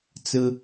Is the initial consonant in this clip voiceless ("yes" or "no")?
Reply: yes